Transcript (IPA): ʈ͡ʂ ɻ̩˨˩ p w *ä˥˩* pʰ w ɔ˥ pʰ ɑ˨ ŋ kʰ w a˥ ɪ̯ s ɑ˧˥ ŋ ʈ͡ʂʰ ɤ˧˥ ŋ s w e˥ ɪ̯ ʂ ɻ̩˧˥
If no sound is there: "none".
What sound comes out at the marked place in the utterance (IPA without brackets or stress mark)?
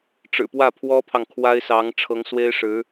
ä˥˩